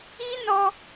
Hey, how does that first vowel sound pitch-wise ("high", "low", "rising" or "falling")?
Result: high